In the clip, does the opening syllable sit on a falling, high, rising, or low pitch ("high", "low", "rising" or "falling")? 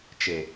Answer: low